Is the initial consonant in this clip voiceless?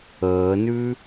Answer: no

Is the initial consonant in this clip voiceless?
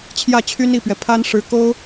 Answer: yes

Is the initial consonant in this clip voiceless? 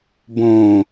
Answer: no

